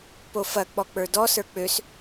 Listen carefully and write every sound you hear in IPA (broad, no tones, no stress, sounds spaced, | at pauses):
p o f ɐ k͡p ɔ k͡p ə˞ d ɔ s ə˞ k͡p ø s